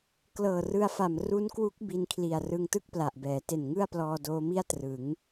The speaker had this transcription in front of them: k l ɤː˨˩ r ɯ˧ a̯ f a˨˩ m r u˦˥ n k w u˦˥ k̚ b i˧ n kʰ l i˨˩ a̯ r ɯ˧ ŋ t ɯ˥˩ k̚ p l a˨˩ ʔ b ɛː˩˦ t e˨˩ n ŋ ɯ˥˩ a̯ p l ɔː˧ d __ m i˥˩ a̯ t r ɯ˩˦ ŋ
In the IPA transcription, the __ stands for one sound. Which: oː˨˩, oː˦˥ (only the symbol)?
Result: oː˦˥